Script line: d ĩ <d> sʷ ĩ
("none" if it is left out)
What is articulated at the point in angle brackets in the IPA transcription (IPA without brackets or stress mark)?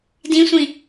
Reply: none